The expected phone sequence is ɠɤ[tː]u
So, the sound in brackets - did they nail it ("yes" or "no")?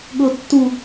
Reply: yes